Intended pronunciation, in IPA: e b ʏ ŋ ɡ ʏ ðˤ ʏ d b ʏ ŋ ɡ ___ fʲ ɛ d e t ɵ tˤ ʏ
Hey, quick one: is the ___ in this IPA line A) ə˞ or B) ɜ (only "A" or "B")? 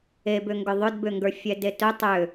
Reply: A